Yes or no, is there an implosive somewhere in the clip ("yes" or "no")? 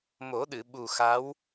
yes